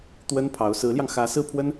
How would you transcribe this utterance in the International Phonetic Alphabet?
t̪wə˥npʰɑ˧˥ʊ̯ sɹ̩˧˥ljɑ˧ŋ xä˧˥ sɹ̩˥˩pʰwə˥n

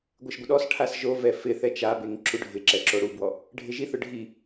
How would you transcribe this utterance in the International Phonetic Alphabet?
ɡʷeʃɡʷɪɗɔsʈʰas ʒovɛ fɪθɛ t͡ʃabeŋ ǁuɖʱɪǁɛ ǁoɽubwɔ | ɖʱɪʒiθʊ ɖʱi

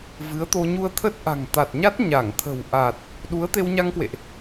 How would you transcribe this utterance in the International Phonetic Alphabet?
vɨ˨˦ə̯t̪o˧ ɲu˧ə̯ t̪ʰə˦˥t̚ʔa̤˨˩ŋt̪a˨˩t̚ɲa˦˥t̚ ɲa˧˩ŋt̪ʰə̤˨˩w ʔa˨˩t̚ | ɗu˨˦ə̯t̪e˧wɲa˧ŋkwḛ˧˨ʔ

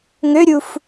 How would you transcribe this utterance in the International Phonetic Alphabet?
ŋøɾʲuf

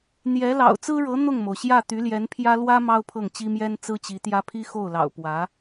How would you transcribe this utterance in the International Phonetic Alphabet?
n̪jɛ˧˥lɑ̰˨˩ʊ̯ t͡sɹ̩˥ɻɤ˧˥ n̪ʊ˥˩ŋmo˩ʊ̯ɕjä˥˩ t̪y˧˥ljɛ˧˥npʰjä˥ lwä˥ mɑ˥ʊ̯pʰɤ˥˩ŋ t͡ɕi˥mjɛ˥n t͡sɹ̩˥t͡ɕi˧˥t̪jä˥ pʰi˥xo˥˩ʊ̯lɑ̰˨˩ʊ̯ pwä˧˥

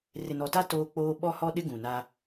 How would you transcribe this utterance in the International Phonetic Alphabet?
rɪ˨nɔ˨ ta˦ toː˦k͡poː˦ ɓɔ˦hɔ˦ɗɪ˦ ɡũ˨na˦

